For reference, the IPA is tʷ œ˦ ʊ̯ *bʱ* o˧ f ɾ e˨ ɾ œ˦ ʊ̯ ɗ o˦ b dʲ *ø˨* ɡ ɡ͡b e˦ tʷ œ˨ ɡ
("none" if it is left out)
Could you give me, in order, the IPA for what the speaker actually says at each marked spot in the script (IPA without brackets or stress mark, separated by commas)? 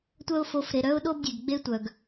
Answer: f, e˨